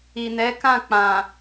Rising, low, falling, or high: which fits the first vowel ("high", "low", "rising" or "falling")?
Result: low